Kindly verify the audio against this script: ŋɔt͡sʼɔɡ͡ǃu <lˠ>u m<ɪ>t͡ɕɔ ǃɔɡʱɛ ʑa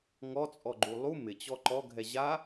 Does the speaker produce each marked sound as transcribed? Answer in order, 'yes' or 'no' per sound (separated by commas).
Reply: yes, yes